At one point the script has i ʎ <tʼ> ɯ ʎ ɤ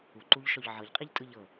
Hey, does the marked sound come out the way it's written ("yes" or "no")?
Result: yes